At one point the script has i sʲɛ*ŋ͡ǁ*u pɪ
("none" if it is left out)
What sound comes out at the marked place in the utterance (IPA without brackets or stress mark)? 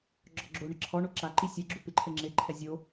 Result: ɡ͡ǁ